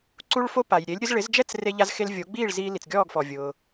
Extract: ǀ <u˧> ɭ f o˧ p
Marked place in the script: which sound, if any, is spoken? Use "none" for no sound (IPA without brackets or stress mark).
u˧